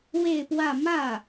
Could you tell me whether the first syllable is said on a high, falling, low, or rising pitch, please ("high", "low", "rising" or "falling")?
falling